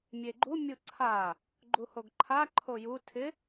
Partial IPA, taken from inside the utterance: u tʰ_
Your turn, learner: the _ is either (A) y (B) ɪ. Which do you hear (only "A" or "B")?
B